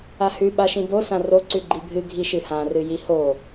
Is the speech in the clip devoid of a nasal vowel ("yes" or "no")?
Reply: no